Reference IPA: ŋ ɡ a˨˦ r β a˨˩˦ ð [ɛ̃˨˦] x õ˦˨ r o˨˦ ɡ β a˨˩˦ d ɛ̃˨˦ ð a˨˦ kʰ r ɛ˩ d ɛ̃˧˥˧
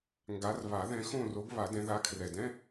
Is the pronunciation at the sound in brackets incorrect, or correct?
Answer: correct